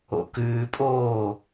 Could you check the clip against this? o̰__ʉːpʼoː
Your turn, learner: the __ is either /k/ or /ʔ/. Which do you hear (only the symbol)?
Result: k